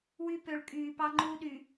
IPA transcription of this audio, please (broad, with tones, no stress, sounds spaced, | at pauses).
w y˦ p ø˨ ɭ kʼ yː˨ p ɑ˦ ŋ͡ǃ u˦ ɗ y˨